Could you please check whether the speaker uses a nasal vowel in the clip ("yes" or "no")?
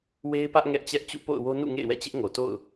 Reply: no